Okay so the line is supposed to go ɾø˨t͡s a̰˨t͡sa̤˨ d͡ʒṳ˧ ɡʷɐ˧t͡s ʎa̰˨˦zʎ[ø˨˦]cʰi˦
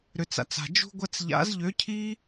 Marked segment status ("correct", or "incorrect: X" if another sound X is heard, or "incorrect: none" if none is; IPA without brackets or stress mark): correct